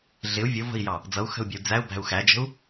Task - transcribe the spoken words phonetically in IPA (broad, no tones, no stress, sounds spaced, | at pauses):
ɮ ɪ u̯ vʲ ʊ v ə̤ i̯ j ɑ | d͡z ʌ u̯ x ə̤ u̯ bʲ ə̤ u̯ d͡z æ u̯ b æ̤ u̯ x æ d͡ʒ ə̤ u̯